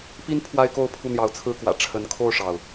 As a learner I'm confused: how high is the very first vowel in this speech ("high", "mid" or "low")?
high